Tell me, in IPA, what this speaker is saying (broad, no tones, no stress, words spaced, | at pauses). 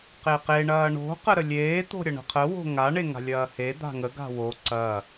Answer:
qeqe ɳɐːɳo̤ qəɾəlʲeː t̪o̤ɾʲɐɳə̤qʰə wo̤ŋa ɳeŋa̤lʲɐːhe d̪a̤ŋə ɡa̤wo ǀɐ